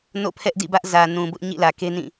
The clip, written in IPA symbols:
n o̰˦˨ pʰ ɛ˦ ʔ d ḭ˦˨ b ä˦ ʔ z ä˨ n ũ˨ b ʊ˦ ʔ ɲ ḭ˦˨ l ä˨ k e˦ n ĩ˦˨

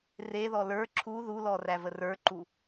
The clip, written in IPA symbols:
r e ð ɔ l ə˞ ǁʰ u ð u l ɔ r æ v ə r ə˞ ǃ u

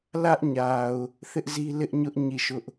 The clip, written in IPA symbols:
l ä˦ ʔ ɲ a˨ ʊ̯ | θ ɪ˦ ʔ z i˦ l ɪ˦ ʔ ɲ ʊ˦ ʔ ɲ i˦˨ ʃ ʊ˦ ʔ

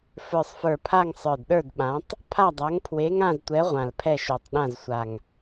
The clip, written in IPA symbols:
f ə˞˨˩ sˤ f ə˞˨˩ pʰ a˦˨ ŋ sˤ ə˞˨˩ d ɗ ə˞˦˨ d ɓ ã˨˦ tˤ | pʰ a˦˨ dˤ a˨˦ ŋ pʰ w e˨˦ ŋ ã˦˨ z tʷ ɛ˨˦ ʁʷ ã˨˩ l pʰ ɛ˦˨ ʃ o˨˩ tˤ ɗ ã˦˨ z sʷ a˨˩ ŋ

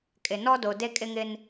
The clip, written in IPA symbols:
kʼ ɪ˨ n ɔ˦ d o˨ d e˦ kʼ ɪ˦ ŋ ɪ˦ n

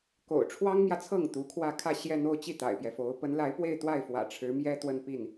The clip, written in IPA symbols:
k o̰˨˩ ʊ̯ ʈ͡ʂʰ w ɑ˥ ŋ m j ä˨ t͡sʰ ɤ˥˩ ŋ t̪ u˧˥ kʰ w ä˥˧ kʰ ä˥˧ ɕ j ɛ˥˧ n̪ o˥˧ ʊ̯ t͡ɕ i˥˩ t̪ a̰˨˩ ɪ̯ p j ɛ˦ f o˧˥ ʊ̯ p ə˧˥ n l a˧˥ ɪ̯ p w e˥˧ ɪ̯ t̪ w a˥˩ ɪ̯ f w ä̰˨˩ ʈ͡ʂʰ ɻ̩˧˥ m j ɛ˥ t̪ w ə˥˧ n p i˥˩ n

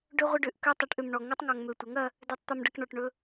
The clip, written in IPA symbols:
ɖ ø˦ ʁʷ ə˦ ɖ ø˨ ʔ k ø˦ tˤ ɜ˨˥ ʈ ʔ ø˨ m ɳ ɔ˨ ŋ ɵ˦ tˤ ŋ ɔ˨ ŋ m ø˨ tʷ ɐ˨˥ ŋ ɐ˦ | d ø˦ tˤ t̪ ɔ˦ m ɖ ɐ˦ k ɳ ɔ˨ ʈ ɳ ɵ˦

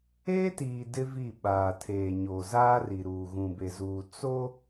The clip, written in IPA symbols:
eː˦ t iː˨ d ɪ˦ v i˦˨ ɓ aː˨ tʰ eː˨ ɲ oː˨ z aː˦ r i˨ ɾ uː˨ ɣ ũ˨ b e˨ z uː˨ t͡s o˦

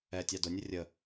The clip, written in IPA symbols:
ɛ tʲ ɑ d ʊ nʲ ə rʲ ə

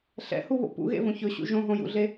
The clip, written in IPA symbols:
ɬ ɛ̰ h u β o̰ p ṵ ɣ ḛ v õ ç ɵ ɕ ṵ ʒ õ ɦ õ j ṵ ɮ e

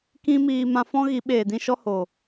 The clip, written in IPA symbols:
k ĩ˦ m iː˧ m ã˧ f ɔ̃˦ ɣ i˨˦ ɓ eː˨ d ĩ˦ ʃ ɔ˦ h o˨

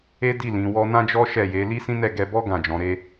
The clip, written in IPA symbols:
e˦ d i˦˨ l ĩ˨˦ w ɔ˦ n ã˦ d͡ʒ ɔ˦ ʃ ɛ˦˨ j e˨˦ l i˦ s ĩ˦ n ɛ˦˨ ɡ ɛ˧ b ɔ˦ ɡ ã˦˨ d͡ʒ ɔ̃˨˦ ɾ e˧

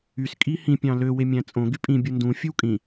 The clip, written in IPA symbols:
y s kʼ i h ĩ pʲ ɑ̃ l ø w e mʲ æ̃ t͡sʼ õ ɡ y pʼ ĩ bʲ u n d ũ fʲ ɯ w kʼ ĩ

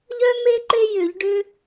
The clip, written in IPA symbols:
ʎ œ˥ m e˥ ǃ e˥ j ʏ˧˩˧ ʎ ɖ ʏ˥

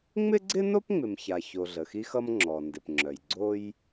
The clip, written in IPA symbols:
ŋ͡m ɪ˥ ɡ͡ǀ ɪ˥ n o˥ p ŋ͡m ɪ˩ m ç a˩ ç o˩ ɮ ə˩ x i˥ x ʌ˥ m ŋ͡ǁ ɔ˩ n d ɪ˩ p ŋ͡ǁ œ˩ j ɡ͡ǀ o˥ j

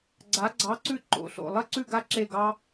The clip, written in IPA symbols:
ɡ͡ǀ a˧˥ ɡ͡ǀ ɑ˧˥ ǀ ʉ˥˧ ǃ o̰˧˥˧ ɬ o̰˥˧ lˠ ɐ˥ ǀ ʉ˥˧ ɡ a˥ ǁ e˥˧ ɡ ɑ˥

